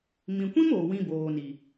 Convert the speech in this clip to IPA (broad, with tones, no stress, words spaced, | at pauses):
mĩ˨kʷĩ˦m oː˨wĩ˧boː˨ni˨